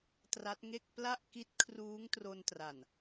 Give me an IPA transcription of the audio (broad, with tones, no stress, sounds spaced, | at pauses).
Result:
t r a˦˥ t̚ ŋ e˥˩ k̚ p l a˥˩ ʔ k i˦˥ t̚ kʰ r uː˦˥ ŋ t r o˧ n t r a˨˩ n